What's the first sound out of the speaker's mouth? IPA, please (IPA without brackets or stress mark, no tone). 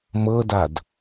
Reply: m